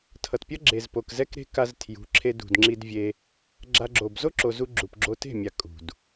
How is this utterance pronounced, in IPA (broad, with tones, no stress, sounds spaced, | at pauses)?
tʰ ʌ˨ t pʲ ʌ˦ ɡ͡ǁ e˨ z p o˨ k z ɛ˦ k ɾ e̤˦ k a˧ z tʰ j ṳ˨˦ ǁʰ e˧ d ṳ˨ d ŋ͡ǁ i˧ d vʲ e˧ | ɡ͡ǁ a˧ ɡ͡ǁ o˨ b z o˦ ǁ o˨ z u˧ ɡ͡ǁ u˨ p ɡ͡ǁ o˧ t e̤˦˨ mʲ a˨ kʼ ṳ˨ d